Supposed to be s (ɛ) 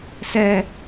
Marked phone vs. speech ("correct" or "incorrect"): correct